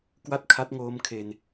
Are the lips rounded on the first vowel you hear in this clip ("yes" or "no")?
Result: no